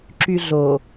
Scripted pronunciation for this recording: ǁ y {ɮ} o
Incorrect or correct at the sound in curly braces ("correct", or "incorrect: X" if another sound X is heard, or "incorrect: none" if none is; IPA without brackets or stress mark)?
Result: correct